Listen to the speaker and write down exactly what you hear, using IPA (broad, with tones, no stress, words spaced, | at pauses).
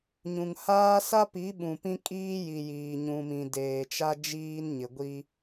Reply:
ɲũ˨ŋhaː˦ sa˦pi˨˦ ɓũ˨pĩ˦ kʼiː˦ji˨ jiː˨ɲũ˨mĩ˨ deː˨t͡ʃa˦ d͡ʒiː˦nɲɪ˨ɡʷi˦